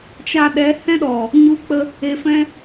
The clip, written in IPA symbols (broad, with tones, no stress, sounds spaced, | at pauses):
t͡ʃ a˧ ɗ ɛ˨˦ h ɛ̃˧ ɗ ɔ˨ | ɲ u˧ k͡p ə˦ | e˧ f ɛ̃˦